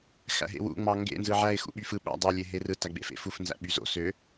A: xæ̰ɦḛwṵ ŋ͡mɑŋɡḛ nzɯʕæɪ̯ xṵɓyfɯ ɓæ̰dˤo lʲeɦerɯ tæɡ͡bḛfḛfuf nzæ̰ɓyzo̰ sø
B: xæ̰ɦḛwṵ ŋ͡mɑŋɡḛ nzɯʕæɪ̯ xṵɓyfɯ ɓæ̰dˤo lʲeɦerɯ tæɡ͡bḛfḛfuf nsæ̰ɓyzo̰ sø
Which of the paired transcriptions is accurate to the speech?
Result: A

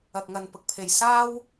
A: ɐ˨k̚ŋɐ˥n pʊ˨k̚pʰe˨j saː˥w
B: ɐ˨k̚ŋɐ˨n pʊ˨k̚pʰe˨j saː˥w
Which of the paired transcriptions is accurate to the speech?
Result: B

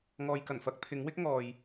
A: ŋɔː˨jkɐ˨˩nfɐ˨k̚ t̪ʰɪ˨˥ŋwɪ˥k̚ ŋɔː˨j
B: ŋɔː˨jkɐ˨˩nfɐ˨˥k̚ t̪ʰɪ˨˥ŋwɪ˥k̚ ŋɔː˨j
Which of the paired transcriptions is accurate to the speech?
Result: B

